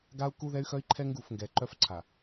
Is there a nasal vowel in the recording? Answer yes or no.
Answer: no